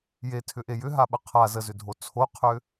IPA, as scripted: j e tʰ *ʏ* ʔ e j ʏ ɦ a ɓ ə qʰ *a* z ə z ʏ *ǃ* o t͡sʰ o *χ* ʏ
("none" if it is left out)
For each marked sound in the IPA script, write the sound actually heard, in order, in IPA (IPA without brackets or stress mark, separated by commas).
ʏ, a, dʱ, qʰ